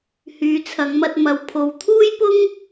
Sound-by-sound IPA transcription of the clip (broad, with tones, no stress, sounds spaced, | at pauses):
h yː˨˧ t͡sʰ ɐ˨˧ ŋ m ɐ˧ t̚ m ɐ˧ w pʰ o˨˧ w t̪ʰ uː˥ j p ʊ˥ ŋ